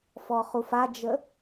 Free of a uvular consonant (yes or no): no